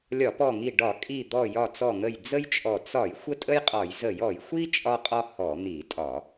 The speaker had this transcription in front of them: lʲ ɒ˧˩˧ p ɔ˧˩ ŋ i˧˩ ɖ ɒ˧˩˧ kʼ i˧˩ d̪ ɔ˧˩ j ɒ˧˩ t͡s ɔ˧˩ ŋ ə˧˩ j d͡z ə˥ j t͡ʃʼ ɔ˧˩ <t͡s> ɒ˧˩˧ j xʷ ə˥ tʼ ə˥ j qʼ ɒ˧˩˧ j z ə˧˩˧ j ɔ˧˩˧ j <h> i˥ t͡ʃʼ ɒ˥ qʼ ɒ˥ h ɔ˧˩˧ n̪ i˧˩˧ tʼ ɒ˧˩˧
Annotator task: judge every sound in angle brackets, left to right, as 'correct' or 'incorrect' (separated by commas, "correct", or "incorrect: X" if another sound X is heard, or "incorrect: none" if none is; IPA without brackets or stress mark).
correct, incorrect: xʷ